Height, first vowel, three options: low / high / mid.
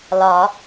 low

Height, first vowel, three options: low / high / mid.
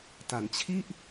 low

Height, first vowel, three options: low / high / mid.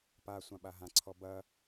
low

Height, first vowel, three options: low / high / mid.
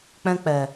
mid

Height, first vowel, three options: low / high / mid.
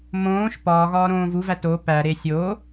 mid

